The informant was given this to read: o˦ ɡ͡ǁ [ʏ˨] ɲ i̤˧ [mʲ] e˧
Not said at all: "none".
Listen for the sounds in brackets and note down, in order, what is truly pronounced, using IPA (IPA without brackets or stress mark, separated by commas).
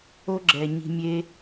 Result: ɛ˨, mʲ